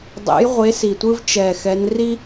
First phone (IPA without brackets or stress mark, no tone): dˤ